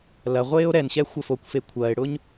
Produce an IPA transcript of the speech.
l ɐ ʁʷ eː o̯ ɾ ɛ n ɕ ɛ xʷ ɐ f o kʷ f e kʷʰ ɐː e̯ ɽ ʊː ɲ

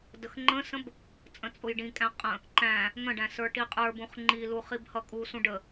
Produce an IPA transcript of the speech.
d ə x ŋ͡ǃ ə̃ s ə̃ b | t͡sʼ ə̃ t͡sʼ ʊ j ɖ ĩ kʼ æ̃ qʼ ə̃ | ǃ æ̃ | ŋ ə̃ ɖ æ̃ s ə˞ ʈ i qʼ ə˞ b ũ χ ŋ͡ǃ i l u χ i b h ʌ kʼ u s ũ ɖ ə

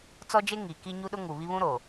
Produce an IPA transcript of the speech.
t͡s ɔ˦ d͡ʒ e˦ ŋ i˨ k i˦ ɲ u˦ ɗ ʊ˦ ŋ u˨ β i˦ β ũ˦ ɾ o˨

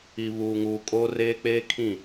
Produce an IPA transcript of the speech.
i˨ β uː˨ ŋ uː˨ kʼ oː˦ r eː˦ k͡p eː˦ kʰ ĩ˦˨

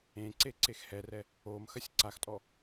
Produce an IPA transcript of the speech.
ẽ ǀ e ǀ e x h ɛ r ɛ | o m x ɐ sʲ ǀ a x tʼ ɔ

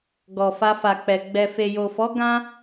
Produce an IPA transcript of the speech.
ɡ ɔ˨ f a˧ f a˨ k͡p ɛ˨ ɡ͡b ɛ˨ f e˨ j o˨ f ɔ˨˦ ɡ ã˦

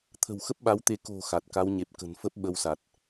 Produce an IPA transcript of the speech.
t̪ʰ ə̤˨˩ w x ə˦˥ p̚ ɓ a˨˦ w t̪ e˨˦ k o̤˨˩ x a˨˩ t̚ k a˨˦ w ɲ e˨˩ p̚ k ə̤˨˩ n f ə˦˥ p̚ ɓ ə˧ w s a˨˩ t̚

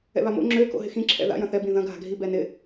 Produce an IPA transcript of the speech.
ɛ̰ β a m o̰ ŋ͡ǁ ø k o̰ ɦ ɪ x ĩ ǁʰ ɛ̰ ð a̰ j ɐ̃ θ ɛ b ĩ ð ɐ̃ ɡʱ a̤ ɡʱ i b ɛ n ɪ

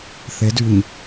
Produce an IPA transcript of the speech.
θ e d y ɲ

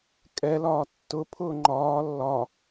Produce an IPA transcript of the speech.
kʼ ɛ l ɒː tː ʊ pʰ ʊː ŋ͡ǃ ɒː lː ɒ

